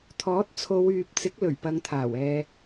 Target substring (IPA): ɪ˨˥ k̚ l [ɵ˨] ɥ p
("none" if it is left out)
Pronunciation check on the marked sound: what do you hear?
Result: ɵ˨˩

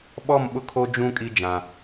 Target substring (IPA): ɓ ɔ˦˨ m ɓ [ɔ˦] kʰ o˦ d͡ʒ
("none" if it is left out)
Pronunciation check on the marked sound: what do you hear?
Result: ʊ˦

